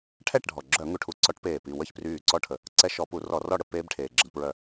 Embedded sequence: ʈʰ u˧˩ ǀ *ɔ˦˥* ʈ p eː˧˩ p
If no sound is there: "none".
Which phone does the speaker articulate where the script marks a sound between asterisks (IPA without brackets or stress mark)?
ɔ˦˥